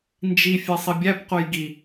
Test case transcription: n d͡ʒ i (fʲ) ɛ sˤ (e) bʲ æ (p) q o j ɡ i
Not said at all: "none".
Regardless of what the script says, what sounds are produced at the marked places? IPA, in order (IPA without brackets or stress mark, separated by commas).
fʲ, i, p